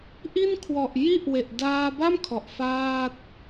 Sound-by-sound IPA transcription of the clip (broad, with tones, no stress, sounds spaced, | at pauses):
ʔ i˥˩ n kʰ w ɔ˨˩ ʔ j i˥˩ ʔ w e˨˩ ʔ d aː˧ b a˥˩ m kʰ ɔ˨˩ ʔ f aː˥˩ t̚